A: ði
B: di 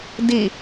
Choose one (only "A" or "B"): B